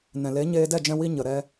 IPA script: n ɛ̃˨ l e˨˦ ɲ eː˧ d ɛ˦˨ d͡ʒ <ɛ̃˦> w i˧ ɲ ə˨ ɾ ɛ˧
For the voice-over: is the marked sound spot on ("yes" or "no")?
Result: no